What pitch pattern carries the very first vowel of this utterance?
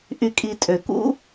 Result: low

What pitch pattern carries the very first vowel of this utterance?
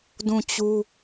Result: falling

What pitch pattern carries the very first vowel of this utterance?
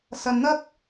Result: low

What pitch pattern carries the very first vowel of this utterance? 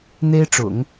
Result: high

